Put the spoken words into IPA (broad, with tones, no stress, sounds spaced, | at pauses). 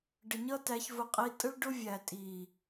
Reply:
ɖ ə˨ ɲ ʌ˦ t æ˧ ç v ʊ˧ qʼ i˧ tʼ ə˦ ɭ ɖ ʊ˦ vʲ æ˨ tʼ i˨